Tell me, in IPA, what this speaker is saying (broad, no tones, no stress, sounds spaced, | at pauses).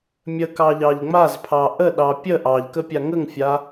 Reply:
mʲ ə k ɑ ʎ ɑ ʎ ŋ͡m a z pʰ ɑ ʔ ə ɗ ɑ pʲ ə ʔ ɑ ʎ k ə pʲ a ŋ ə ŋ fʲ a